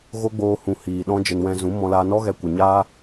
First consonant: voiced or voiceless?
voiced